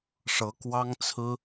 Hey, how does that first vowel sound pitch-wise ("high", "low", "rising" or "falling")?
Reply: rising